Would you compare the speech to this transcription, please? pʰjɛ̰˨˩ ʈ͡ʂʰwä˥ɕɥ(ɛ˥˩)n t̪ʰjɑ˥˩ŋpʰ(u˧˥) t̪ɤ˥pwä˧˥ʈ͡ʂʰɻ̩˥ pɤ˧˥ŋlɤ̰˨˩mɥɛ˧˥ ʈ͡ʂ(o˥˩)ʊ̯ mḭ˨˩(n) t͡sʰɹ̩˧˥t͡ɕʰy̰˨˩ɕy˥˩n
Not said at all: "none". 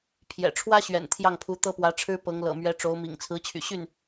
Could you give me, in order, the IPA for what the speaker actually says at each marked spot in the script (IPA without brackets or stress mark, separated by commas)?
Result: ɛ̰˨˩, u˧˥, o˧˥, ŋ